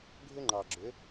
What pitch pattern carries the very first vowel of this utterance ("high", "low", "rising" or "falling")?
high